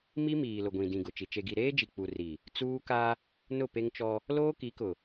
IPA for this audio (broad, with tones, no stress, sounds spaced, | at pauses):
m i˦ m iː˨ l ʊ˨ ɡʷ ĩ˨ d ĩ˨ ɡ ʊ˨ t͡ʃ i˨ t͡ʃ e˨ ɡ i˨ ɾ eː˦ d͡ʒ i˨ k͡p u˨ r i˨ | t͡s uː˦ k a˦ | n ʊ˦˨ p e˦ ŋ t͡ʃ ɔ˦ | l oː˦ k i˨˦ k ʊ˨